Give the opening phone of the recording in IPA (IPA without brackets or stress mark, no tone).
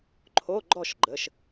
ǃʰ